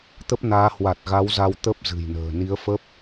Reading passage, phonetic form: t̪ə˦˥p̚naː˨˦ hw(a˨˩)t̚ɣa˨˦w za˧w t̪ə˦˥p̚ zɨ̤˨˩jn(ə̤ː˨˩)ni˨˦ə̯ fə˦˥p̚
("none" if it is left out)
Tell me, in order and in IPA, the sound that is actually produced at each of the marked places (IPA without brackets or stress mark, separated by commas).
a˨˩, ə̤ː˨˩